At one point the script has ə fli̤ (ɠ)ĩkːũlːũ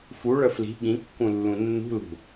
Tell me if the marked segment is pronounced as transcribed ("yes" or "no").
yes